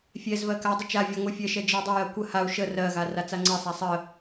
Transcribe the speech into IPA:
fʲ ɛ z v ɜ k a dˤ ə t͡ʃ a vʲ a ŋʷ ɛ fʲ ɜ ʃ ɛ d͡ʒ ə u̯ dˤ ə j ɜ kʷ ə h a u̯ ʃ ə r ɜ ɣ a r a t͡s a ŋ͡ǀ ɜ sˤ a sˤ ə

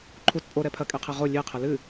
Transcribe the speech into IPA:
ǃʰ u t pʼ o ɾ ɛ pʰ ɐ kʼ e qʰ e ʁ o lʲ e qʰ ɘ l ɨ

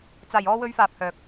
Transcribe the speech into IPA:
t͡s aː˨ j ɔː˧ w ɵ˧ ɥ f aː˨ p̚ h œː˨ k̚

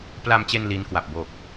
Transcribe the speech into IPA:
p l a˧ m t͡ɕ e˧ n l iː˦˥ n k w a˨˩ p̚ b o˨˩ k̚

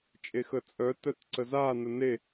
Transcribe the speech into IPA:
t͡ʃʼ e x ə t͡sʼ œ t œ t ǀ ə z a n ə n e

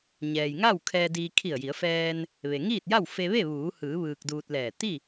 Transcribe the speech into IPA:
ɲ ɛː˩ j ŋ a˥˨ w kʰ ɛː˧ d iː˧ kʰ i˧˩ ə̯ j i˩˧ ə̯ f ɛː˧ n | ʋ e˩ ŋ iː˥˨ t̚ j a˥˨ w f e˧ ʋ e˥˨ ʋ uː˩˧ h ɯː˩˧ ʋ ɯː˧ k̚ d uː˧ t̚ l ɛː˧˩ t̪ i˥˨

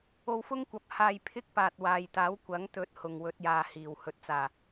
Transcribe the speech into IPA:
o˧ w f ʊ˥ ŋ kʷ ɐ˨˥ p̚ h aː˧ j pʰ ɪ˥ k̚ p aː˨ t̚ w aː˨ j t̪ aː˨˥ w kʷ ɐ˨˥ ŋ t̪ ɵ˨˥ t̚ h ʊ˨˩ ŋ w ɵ˧ t̚ j aː˨ h iː˨˩ w h ɵ˨ t̚ t͡s aː˨˩

